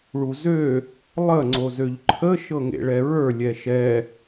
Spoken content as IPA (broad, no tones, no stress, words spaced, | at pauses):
ɭuzø | lˠə ŋ͡ǀozøʎǃʰə ʃɤŋḛɭɛɹə˞ lʲɛʃɛ